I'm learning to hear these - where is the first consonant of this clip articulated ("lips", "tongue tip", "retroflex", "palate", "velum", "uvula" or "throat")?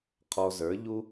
uvula